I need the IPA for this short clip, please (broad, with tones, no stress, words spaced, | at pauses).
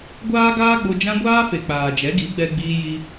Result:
ɡʷaː˦ɡaː˦ɡ͡bo˧ d͡ʒã˦ ɡʷaː˦fe˨ k͡paː˨d͡ʒɛ˨˦ɡi˨˦ ɡ͡bɛ˧ɡ͡biː˧ji˧